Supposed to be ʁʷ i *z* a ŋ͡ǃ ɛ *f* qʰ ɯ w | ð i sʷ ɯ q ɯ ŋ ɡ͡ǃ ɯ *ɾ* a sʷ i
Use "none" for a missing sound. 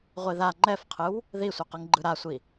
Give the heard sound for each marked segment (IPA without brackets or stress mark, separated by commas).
ð, f, ɾ